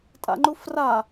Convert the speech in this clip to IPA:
tʼa̰ŋ͡ǃufra

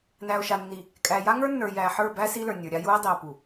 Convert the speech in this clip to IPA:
næ˨o̯ʃa˨nːi˨ | kʼæ˨ja˦ŋə˞˦nːə˞˨ jæ˨ħə˞˦˨ bæ˦ si˦lə˞˨nʲə˞˨ɾʲa˦ ju˦e̯dˤi˨o̯pu˨

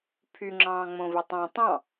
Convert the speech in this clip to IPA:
pʰyŋ͡ǁɑ̃ː ŋ͡mõvetˤɑ̃ tˤɑ̃

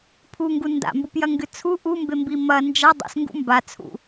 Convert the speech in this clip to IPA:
pʰuŋɡu nda̰mbupjɐŋɡɨ t͡sʰu ʔumbembi mɐ nd͡ʒa dˤṵsŋɡṵ mbat͡sʰṵ

